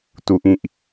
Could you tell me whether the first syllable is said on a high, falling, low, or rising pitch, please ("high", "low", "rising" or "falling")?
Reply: low